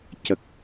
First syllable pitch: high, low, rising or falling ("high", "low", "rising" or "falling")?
low